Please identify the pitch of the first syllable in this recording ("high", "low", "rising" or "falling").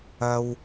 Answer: high